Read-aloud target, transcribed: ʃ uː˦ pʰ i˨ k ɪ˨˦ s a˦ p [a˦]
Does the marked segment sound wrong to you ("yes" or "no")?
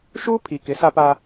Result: no